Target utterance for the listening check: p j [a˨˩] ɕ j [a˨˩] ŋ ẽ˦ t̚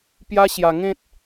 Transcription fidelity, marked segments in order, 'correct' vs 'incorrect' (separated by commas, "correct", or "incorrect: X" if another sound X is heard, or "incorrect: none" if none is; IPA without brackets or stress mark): incorrect: a˦, incorrect: a˧